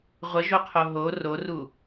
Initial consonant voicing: voiced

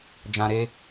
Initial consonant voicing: voiced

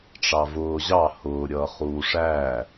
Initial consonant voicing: voiceless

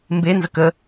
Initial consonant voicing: voiced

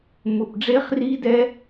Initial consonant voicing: voiced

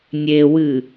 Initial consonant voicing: voiced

